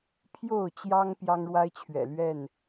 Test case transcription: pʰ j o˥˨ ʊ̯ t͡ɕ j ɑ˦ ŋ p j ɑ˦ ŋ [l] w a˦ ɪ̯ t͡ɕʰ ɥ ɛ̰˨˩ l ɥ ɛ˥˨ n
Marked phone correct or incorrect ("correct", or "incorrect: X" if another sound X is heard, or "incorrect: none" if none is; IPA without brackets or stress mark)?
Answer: incorrect: ɻ